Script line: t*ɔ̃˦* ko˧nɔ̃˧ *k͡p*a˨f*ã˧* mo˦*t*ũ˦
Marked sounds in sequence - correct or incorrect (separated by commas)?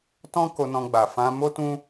correct, incorrect, correct, correct